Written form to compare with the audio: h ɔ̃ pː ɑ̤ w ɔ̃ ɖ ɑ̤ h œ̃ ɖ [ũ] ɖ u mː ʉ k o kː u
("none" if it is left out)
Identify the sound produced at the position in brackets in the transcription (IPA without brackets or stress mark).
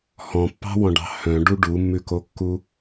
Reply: u